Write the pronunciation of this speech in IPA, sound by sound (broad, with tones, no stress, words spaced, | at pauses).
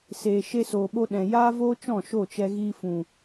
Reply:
seː˧ ʃe˧soː˨ɓo˧ ɗɛ̃˨jaː˦voː˦t͡ʃɔ̃˦˨ ʃo˦˨t͡ʃɛ˧ ɣiː˧fũ˨